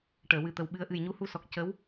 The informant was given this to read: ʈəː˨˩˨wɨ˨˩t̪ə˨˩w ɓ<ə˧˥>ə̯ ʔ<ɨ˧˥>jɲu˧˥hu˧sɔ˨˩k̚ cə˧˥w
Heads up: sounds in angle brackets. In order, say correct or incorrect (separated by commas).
incorrect, incorrect